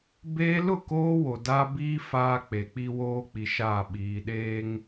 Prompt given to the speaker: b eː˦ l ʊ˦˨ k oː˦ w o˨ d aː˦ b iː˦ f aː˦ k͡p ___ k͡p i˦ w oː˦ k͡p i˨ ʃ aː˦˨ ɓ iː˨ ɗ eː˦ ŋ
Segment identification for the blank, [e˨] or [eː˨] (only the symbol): e˨